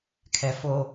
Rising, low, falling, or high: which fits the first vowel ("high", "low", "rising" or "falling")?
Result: low